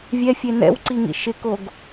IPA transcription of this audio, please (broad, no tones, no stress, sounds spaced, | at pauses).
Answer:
vʲ ɛ fʲ e n ɛ̰ w ǀ i ŋ ḭ ʃ ɪ k o ɡ